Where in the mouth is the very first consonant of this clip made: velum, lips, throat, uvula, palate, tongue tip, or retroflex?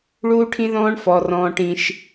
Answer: retroflex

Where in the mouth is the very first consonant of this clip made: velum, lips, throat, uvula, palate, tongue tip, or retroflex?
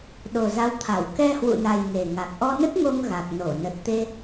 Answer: tongue tip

